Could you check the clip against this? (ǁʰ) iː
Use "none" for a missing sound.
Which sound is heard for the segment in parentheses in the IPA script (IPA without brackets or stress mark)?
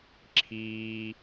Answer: ǁʰ